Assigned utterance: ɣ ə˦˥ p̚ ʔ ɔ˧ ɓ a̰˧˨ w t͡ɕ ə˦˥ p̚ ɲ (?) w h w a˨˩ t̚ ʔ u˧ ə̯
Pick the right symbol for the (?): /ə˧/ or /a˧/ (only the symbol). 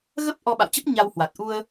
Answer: a˧